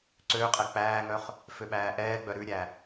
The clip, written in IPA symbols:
ǀ ø qʼ ɛ k͡p æː ŋ œ χ | f ø ɓ æː ʔ ɛː ɡ͡b œ ɾ ʉ ɾʲ æ

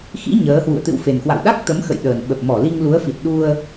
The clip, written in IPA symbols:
x ḭ˧˥ ɲ əː˨˦ h w ṵ˧˨ ə̯ t̪ ɨ̰˧˨ w f e˨˩ n k w a̰˧˨ w ɗ a˦˥ k̚ t̪ ə˨˦ m x ə̰˧˨ j ɗ əː˨˩ n ɓ ə˨˩ p̚ m ɔ˧˩ l i˧ ŋ l u˨˦ ə̯ f i˨˩ t̚ ɗ u˧ ə̯

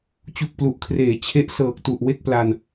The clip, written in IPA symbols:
t͡ɕ u˨˩ k̚ p l u˨˩ ʔ kʰ r eː˩˦ t͡ɕʰ e˦˥ ʔ s ɤː˨˩ k̚ t u˨˩ ʔ w e˥˩ k̚ p l a˧ n

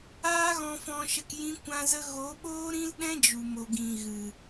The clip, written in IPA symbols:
aː˦ ɣ ɔ̃˧ f ɔ̃˧ ʃ ə˧ k j ĩ˦ kʷ ã˦ z ə˦ ɣ o˨˦ ɓ oː˦ ɾ ĩ˦ l ɗ ɛ̃˦ d͡ʒ u˨ m o˨ ɡ ĩ˨ ɣ ɨ˨

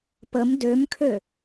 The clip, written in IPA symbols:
p ə m d ø m kʰ ø

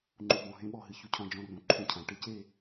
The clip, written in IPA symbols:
ŋ͡ǃ u˨ b ɔ̃˨ ɦ ẽ˦ ɓ ɔ˨ ɦ ɨ˨ ç u˦ cʰ ɔ̃˦ d͡ʒ ɔ̃˦ r ũ˨ ǃʰ ũ˦ cʰ ã˨˦ ʈ ɨ˦ c e˦˨

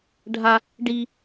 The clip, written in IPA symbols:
ɖʱ a | ɖ i

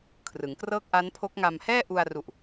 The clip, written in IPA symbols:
kʰ r ɯ˩˦ ŋ k r ɤː˥˩ k̚ ʔ a˦˥ n pʰ o˦˥ k̚ ŋ a˧ m h ɛː˥˩ ʔ u˧ a̯ r u˨˩ ʔ

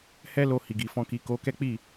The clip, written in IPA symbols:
h ɛ˦ l o˧ h i˨ ɡ i˨ f ɔ̃˧ k i˨ k o˨˦ k ɛ˦ k͡p i˦˨

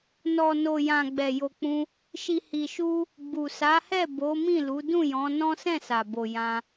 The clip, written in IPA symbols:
n ɔ˨ n o˨ j ã˨ ɡ͡b ɛ˨ j o˨ k͡p ũ˧ | ʃ i˨ h i˨ ʃ u˧ | ɡ͡b u˨ s a˨˦ h ɛ˦˨ b o˨˦ m ĩ˦˨ l u˨˦ d ũ˦˨ j ɔ̃˨˦ n ɔ̃˦ s ɛ̃˦˨ s a˨ b o˨ j ã˧

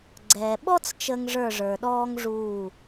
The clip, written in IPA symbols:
ɡ͡ǀ ɛ˨ ɓ ɔ˦ t͡s t͡ʃ ə˦ ŋ ʐ ə˞˦˨ ʐ ə˞˨ ɗ ɔː˦ ŋ ʐ uː˦˨

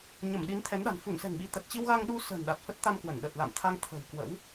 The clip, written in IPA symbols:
ɲ ə˧˩ m ɗ i˨˦ n t̪ʰ ɛ˨˦ n ɗ a̤˨˩ n f u˧˩ n s ɛ̤˨˩ ŋ ɓ i˨˦ t̪ ə˨˩ t̚ t͡ɕ i˧ w ɣ a˧ ŋ ɗ u˧ s ə̤ː˨˩ n ɗ a˨˩ t̚ f ə˦˥ t̚ t̪ a˧ m k w ə˧˩ n ɗ ə˨˩ t̚ l a̰˧˨ m t̪ʰ a˧ ŋ t̪ʰ ə̤˨˩ w k w ə̰˧˥ w

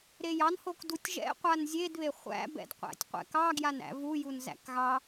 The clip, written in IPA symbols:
ɾ e j ɑ n h o k d u tʲ ʒ ɛ̰ qʷ a n zʲ e d β e χʷ æ̰ b ɛ̰ d qʷ æ̰ tʲ qʷ ɛ̰ k ɑ ɡ j a n æ̰ v u j u n z æ̰ k ɣ ɑ

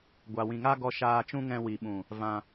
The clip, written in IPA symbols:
ɡʷ a˨ w ĩ˨ ŋ a˦ ɡ ɔ˧ ʃ aː˧ t͡ʃ ũ˦ ŋ ɛ̃˧ w i˨ ɓ ũ˨ | v ã˧

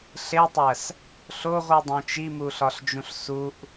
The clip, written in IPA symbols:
ɬ e tˤ æ s | ɬ o ʁʷ i dˤ õ t͡ʃ i m u ɬ ɒ ɬ d͡ʒ ũ ɬ s u ʔ

